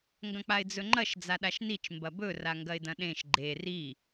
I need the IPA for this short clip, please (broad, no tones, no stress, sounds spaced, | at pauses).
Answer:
ŋ ɡ ɐ̃ k͡p a ɪ̯ d͡z ɵ ŋ͡ǃ ɐ ʃ d͡z a ɗ a ʃ n i t͡ʃ m b ɐ b ɵ r a ŋ ɡ ɐ ɪ̯ d ɐ̃ ɗ ẽ ʃ ɡ͡ǃ e r i